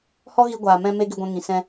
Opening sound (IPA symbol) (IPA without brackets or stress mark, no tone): h